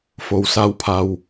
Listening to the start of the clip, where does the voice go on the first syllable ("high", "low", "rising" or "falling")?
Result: low